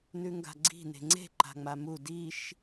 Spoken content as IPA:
n ʉ ŋ ɡ a̤ ɡ͡ǀ i̤ n e̤ ŋ͡ǀ e̤ ǃ a̤ ŋ͡m a m u d i ʃ

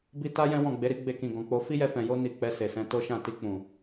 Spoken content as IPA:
b i˧ t a˦ j ɛ̃˦ w ɔ̃˦˨ ɡ͡b e˨˦ ɾ i˦ ɡ͡b e˧ k ĩ˨ ɡ ɔ̃˨ k͡p o˧ f i˦ j ɛ˧ f ɛ̃˨ j o˧ n i˨ k͡p ɛ˧ s e˨ s ɛ̃˧ t o˦ ʃ ã˦˨ t i˧ k͡p ũ˨

